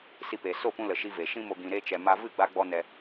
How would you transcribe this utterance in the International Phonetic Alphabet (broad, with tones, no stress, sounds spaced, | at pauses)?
s i˧ p e˨ s o˦˨ p ũ˧ l ə˨ ʃ i˧ v e˨ ʃ ĩ˦ m o˧ ɡ ĩ˧ ɾ e˦ t͡ʃ ɛ˧ m a˦ v ɨ˦˨ ɡ͡b a˧ ɡ͡b ɔ˧ n ɛ˧